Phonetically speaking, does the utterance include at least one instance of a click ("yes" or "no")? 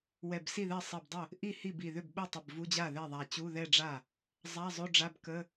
no